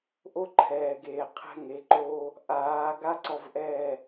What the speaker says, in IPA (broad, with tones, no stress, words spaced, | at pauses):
ʔo˦ǃʰɛː˨ɡeː˨ qʰɛ̤˦ŋe˨˦ǃoː˦ | ʔaː˨˦ɡa˦ ǀɔ˧vʔɛː˦˨